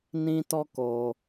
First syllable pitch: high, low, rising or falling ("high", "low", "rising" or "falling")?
high